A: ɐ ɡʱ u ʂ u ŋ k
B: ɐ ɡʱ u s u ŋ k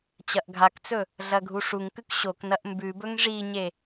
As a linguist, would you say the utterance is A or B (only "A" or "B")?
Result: A